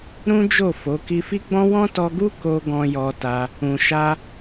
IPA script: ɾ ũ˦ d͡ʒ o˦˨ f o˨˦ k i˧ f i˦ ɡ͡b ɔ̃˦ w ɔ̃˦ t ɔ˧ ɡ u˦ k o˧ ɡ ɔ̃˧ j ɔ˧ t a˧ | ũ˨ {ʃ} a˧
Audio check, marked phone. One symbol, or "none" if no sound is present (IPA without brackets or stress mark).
ʃ